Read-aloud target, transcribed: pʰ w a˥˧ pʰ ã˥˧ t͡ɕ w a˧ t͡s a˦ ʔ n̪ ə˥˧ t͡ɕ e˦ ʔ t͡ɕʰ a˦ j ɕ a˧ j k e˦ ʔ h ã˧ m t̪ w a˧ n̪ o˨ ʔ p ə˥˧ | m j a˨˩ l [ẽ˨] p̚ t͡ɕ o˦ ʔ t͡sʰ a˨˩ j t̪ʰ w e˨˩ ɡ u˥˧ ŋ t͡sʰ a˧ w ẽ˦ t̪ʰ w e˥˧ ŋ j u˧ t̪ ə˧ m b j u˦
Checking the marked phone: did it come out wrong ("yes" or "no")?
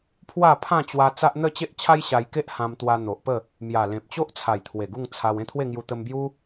no